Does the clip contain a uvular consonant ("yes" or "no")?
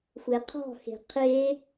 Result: yes